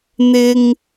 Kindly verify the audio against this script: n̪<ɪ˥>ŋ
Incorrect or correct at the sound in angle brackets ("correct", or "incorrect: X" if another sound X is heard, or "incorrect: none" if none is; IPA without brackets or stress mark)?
correct